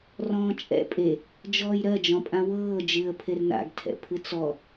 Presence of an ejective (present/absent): present